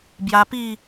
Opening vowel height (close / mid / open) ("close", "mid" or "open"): open